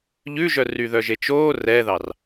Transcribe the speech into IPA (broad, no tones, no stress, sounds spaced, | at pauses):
ʎ ʉ ʒ œ r y ð œ ʒ e t͡ʃ oː r ɛ ð ɑ r